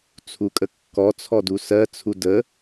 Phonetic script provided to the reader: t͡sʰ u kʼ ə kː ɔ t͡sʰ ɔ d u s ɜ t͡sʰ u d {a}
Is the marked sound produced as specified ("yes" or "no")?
no